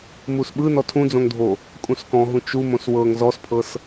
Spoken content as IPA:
musɓɯ nɔtʰũd͡zõŋdʱo | kʼũskɔ̃ɦũ t͡ʃumõs wɤŋ zɔspʰɤs

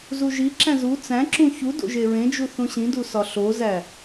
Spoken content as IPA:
zuʒiǁæ̃ zu t͡sæ̃ǁũ çudo̰ ʒeɹẽd͡ʒu θũɕĩdu sɒɬozæ

